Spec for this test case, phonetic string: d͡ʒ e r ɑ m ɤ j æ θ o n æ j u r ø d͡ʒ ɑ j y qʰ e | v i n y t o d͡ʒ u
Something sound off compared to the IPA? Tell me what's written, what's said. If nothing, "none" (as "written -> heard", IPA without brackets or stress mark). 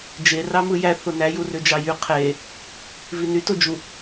ɤ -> ɯ